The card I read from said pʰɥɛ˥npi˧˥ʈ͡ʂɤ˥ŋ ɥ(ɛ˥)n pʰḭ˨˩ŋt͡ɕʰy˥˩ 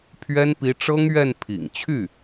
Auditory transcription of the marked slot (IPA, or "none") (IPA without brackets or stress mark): ɛ˥˩